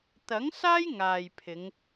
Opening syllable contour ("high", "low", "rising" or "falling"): rising